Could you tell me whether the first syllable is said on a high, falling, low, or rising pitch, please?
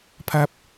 low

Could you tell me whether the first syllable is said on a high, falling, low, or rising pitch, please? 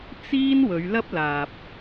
high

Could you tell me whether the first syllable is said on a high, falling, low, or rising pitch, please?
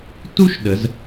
high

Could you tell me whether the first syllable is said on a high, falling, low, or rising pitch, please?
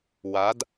rising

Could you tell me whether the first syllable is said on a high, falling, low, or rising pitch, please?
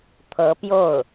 rising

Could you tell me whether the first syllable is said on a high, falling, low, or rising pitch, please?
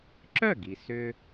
falling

